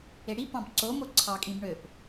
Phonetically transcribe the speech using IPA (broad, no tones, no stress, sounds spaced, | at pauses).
e ɽ i p ɑ̃ b ǀ o m o ǀʰ ɑ kʼ ĩ b ɳ ø p